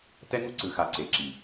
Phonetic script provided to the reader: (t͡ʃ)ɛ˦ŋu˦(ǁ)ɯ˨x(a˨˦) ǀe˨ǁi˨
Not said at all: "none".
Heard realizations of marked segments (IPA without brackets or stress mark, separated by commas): t, ǀ, a˨